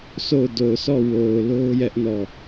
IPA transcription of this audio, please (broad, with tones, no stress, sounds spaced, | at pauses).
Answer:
sʰ o˦˨ ʊ̯ d o˨ ʊ̯ s ɔ˦˨ w o˨ ʊ̯ l o˦ ʊ̯ j ɛ˦ ʔ n ɔ˦˨